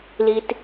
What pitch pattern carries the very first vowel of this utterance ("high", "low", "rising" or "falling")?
low